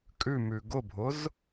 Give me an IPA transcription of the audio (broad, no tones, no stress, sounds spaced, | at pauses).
kʼ ʉ m ʉ ɡ ʊ bʱ ʊ z